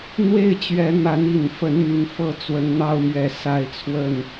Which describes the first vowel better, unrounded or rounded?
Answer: unrounded